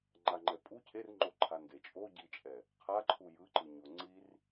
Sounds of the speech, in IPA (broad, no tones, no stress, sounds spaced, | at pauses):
ŋ͡ǃ a ŋ͡ǃ ɛ pʼ u cʰ e r ŋ͡ǃ o ǃʰ a n d e t͡ʃʼ o ɟ i t͡ʃʼ ɛ | qʰ a ǃʰ u j ɯ ǃ ɯ ɲ o ŋ͡ǀ i r